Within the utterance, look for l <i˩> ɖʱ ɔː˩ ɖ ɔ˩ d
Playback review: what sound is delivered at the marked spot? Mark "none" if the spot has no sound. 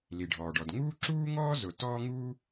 i˩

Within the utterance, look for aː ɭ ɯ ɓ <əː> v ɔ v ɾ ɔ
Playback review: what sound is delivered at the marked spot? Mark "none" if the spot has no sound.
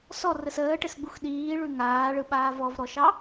aː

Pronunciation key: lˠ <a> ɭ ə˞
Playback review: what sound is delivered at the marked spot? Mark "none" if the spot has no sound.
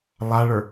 a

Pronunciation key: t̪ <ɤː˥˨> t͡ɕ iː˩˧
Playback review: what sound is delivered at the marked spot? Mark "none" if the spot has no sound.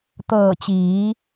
ɤː˧˩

